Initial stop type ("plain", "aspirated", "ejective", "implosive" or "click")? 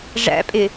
ejective